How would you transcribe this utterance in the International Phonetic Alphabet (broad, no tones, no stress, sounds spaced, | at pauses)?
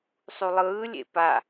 sˤ u lˠ ɯː lʲ ḛ p a